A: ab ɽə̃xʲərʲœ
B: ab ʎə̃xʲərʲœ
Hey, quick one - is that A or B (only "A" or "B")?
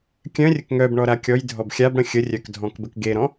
A